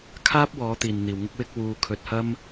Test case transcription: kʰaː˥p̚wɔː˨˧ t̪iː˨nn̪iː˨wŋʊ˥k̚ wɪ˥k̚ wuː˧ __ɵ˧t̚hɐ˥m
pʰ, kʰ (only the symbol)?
kʰ